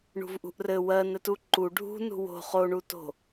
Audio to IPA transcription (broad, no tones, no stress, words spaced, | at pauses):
ɳṳvʔṳʔrɘ wɜn ɘtuǃu ɖʱṳ nṳwo̤ χoɳuto̤